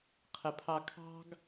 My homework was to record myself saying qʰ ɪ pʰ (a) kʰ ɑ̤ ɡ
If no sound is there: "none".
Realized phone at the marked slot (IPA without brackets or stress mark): ɑ